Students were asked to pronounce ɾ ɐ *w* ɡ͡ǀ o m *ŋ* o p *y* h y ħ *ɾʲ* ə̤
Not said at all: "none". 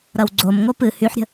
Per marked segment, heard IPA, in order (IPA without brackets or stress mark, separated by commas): w, ŋ, ɨ, ɾʲ